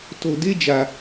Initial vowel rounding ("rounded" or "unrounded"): rounded